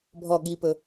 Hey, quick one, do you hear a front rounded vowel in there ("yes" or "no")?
no